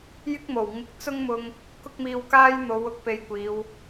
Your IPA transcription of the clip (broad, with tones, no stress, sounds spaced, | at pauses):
j ɪ˥ k̚ m o˨˩ w ŋ ɪ˧ k̚ t͡s ʊ˥ ŋ m ʊ˧ ŋ | k ʊ˥ k̚ m iː˧ w k aː˥ j n̪ o˨˧ w ʊ˥ k̚ p e˧ j kʷ iː˨˧ w